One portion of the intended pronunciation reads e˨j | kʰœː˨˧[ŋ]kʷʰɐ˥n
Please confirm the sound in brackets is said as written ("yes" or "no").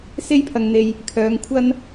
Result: yes